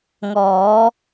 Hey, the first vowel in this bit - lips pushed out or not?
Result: yes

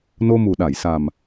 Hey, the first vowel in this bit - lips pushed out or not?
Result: yes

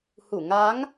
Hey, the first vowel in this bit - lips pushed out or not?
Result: yes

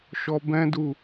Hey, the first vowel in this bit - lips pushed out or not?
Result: yes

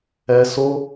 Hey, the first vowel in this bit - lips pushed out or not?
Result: no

